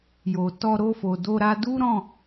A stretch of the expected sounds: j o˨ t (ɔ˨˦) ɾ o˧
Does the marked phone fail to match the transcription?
yes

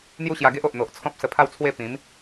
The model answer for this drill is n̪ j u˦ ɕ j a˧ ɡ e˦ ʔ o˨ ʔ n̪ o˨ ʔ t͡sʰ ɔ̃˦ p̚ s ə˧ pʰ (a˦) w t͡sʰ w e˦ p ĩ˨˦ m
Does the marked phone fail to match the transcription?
yes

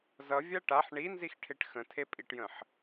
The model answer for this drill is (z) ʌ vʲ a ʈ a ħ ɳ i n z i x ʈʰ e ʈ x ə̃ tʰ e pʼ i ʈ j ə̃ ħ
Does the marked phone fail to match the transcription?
no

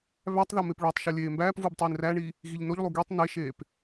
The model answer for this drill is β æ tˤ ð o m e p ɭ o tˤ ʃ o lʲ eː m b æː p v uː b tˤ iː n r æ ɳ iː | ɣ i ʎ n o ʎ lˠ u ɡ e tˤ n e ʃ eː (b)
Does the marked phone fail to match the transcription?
yes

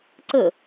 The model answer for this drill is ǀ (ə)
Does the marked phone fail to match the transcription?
no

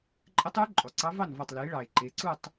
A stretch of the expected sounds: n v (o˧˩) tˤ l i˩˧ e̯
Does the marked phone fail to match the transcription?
yes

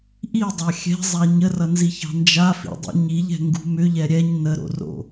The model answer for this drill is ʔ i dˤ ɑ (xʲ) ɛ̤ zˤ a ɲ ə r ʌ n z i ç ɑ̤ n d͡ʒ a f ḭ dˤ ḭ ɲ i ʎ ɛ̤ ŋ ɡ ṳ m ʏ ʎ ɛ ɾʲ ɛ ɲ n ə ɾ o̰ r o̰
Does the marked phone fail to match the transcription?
no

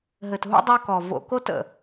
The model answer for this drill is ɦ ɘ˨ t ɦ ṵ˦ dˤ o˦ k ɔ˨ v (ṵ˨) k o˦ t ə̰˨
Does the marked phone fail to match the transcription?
yes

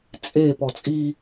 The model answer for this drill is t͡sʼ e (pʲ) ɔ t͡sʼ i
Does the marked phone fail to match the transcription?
yes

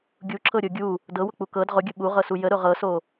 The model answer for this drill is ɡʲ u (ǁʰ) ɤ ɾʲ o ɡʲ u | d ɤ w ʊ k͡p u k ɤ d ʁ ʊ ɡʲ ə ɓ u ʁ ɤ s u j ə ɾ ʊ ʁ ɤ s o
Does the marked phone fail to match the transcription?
no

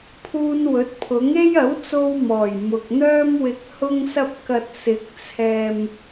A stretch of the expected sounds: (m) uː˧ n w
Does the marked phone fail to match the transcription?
yes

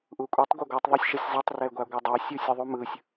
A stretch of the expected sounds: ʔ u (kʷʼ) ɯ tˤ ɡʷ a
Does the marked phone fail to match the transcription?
no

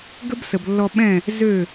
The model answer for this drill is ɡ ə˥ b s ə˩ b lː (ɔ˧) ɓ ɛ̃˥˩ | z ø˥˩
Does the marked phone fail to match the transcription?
no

